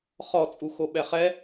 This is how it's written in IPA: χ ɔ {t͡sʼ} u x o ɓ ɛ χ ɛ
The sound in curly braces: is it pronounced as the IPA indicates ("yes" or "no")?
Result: yes